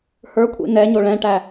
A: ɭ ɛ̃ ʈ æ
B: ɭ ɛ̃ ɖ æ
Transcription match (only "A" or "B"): A